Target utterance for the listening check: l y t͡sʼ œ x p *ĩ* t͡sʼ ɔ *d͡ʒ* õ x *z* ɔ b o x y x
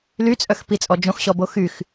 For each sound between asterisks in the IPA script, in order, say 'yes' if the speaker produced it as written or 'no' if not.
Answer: no, yes, no

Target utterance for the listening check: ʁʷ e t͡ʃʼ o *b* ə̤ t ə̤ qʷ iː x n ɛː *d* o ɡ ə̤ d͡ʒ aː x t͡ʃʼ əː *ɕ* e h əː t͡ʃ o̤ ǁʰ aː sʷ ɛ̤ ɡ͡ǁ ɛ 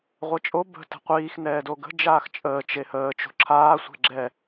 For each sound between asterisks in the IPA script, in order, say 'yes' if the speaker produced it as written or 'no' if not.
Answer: yes, yes, no

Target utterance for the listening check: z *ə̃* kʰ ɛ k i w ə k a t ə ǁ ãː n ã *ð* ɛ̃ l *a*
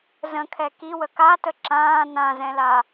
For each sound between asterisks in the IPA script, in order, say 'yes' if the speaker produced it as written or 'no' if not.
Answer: yes, no, yes

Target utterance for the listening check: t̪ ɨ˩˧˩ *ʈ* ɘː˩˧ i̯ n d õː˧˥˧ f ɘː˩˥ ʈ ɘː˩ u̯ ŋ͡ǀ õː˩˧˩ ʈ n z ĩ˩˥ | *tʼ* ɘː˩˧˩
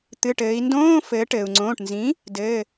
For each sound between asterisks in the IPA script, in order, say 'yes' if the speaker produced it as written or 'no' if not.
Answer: yes, no

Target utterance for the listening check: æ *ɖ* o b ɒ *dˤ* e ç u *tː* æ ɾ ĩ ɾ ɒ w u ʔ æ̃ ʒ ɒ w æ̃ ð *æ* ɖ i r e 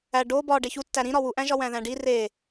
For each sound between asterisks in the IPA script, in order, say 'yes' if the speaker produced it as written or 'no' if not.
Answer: yes, no, yes, no

